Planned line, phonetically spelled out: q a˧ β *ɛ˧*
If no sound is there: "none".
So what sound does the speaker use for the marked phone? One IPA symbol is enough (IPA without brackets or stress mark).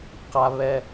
ɛ˧